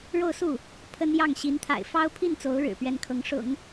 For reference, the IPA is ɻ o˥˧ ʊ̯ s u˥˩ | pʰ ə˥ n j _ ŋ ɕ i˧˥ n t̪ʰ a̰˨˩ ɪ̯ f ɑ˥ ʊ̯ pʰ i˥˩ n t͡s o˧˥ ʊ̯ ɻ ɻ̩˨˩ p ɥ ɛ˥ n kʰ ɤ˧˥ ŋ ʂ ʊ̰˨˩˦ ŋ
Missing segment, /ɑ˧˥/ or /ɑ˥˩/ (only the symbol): ɑ˥˩